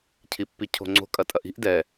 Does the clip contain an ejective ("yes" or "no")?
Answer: yes